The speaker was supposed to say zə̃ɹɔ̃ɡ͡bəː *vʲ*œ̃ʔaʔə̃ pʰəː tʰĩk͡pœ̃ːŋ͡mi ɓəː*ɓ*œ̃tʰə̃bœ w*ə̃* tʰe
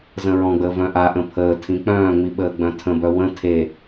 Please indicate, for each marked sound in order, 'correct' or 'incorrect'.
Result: incorrect: v, incorrect: ɡ͡b, correct

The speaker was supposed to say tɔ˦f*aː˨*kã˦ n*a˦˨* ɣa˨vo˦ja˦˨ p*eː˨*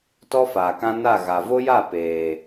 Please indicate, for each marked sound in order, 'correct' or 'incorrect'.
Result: correct, correct, correct

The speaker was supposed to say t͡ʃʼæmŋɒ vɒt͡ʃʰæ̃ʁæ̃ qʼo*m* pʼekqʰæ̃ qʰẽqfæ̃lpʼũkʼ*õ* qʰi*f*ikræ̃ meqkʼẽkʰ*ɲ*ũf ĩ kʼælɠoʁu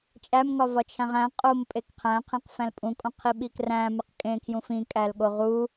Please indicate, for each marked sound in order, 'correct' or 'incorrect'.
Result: correct, correct, incorrect: ɓ, incorrect: j

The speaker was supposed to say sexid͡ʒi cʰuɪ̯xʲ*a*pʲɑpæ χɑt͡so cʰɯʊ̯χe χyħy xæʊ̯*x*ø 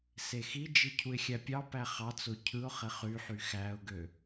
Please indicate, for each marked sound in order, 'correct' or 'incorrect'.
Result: incorrect: æ, incorrect: ɡ

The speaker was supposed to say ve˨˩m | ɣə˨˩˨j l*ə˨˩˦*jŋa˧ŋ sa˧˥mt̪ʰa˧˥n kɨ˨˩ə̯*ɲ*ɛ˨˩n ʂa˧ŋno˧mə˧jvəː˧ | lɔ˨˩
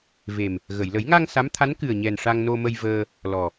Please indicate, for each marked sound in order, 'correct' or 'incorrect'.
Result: correct, correct

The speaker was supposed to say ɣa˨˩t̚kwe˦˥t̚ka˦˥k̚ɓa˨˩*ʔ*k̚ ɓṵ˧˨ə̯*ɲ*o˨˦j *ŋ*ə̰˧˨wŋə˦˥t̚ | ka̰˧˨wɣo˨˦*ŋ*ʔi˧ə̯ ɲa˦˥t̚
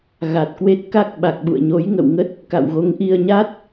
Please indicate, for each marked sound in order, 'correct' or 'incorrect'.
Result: incorrect: none, correct, correct, correct

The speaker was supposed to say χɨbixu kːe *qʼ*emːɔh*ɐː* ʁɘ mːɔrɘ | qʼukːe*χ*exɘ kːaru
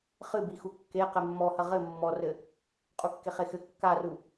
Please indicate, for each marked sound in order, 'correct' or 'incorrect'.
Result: incorrect: q, incorrect: ɐ, correct

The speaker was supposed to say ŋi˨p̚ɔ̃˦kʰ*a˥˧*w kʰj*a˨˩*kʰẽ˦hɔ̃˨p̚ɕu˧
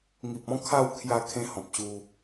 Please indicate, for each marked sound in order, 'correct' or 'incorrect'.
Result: correct, incorrect: a˥˧

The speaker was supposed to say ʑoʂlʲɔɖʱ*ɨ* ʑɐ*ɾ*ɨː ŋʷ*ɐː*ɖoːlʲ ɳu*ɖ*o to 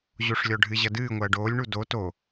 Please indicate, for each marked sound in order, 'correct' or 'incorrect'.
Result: correct, incorrect: d, correct, incorrect: d

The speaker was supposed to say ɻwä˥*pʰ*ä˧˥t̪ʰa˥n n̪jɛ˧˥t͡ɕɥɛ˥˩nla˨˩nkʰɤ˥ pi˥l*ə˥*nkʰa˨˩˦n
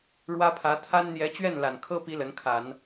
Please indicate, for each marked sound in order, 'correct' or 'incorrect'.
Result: correct, incorrect: ə˧˥

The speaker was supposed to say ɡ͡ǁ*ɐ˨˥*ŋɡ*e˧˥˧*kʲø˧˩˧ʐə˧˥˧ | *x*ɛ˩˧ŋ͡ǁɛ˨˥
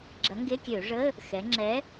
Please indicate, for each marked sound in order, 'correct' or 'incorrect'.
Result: correct, correct, correct

